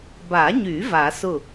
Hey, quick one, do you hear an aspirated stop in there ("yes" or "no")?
no